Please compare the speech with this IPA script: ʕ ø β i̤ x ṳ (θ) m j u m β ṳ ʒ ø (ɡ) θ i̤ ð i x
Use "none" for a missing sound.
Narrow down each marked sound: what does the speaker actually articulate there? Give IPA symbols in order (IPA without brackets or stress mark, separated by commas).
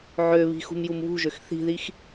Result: none, x